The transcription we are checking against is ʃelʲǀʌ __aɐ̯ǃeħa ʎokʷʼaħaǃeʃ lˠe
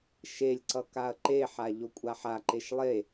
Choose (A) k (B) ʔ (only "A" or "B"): A